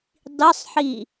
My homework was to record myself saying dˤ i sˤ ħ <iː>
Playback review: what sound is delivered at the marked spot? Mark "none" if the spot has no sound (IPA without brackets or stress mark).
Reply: iː